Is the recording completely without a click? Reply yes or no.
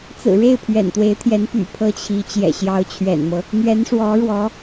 yes